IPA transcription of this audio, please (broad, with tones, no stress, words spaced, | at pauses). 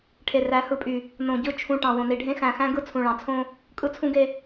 ʈʰe˨ræ˨˦hɯ˨pʼy˨ | nõ˨ɟɯ˦˨ t͡ʃʰũ˨ ʈɑ̃˨wõ˨ni˨ɖʱẽ˦ xæ̃˨xæ̃˦ɡɯ˦ t͡sʰũ˨ɭɑ̃˨t͡sʰõ˦ | kʼɯ˦t͡sʰũ˦ɡe˦